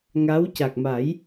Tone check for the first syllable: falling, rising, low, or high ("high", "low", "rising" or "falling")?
rising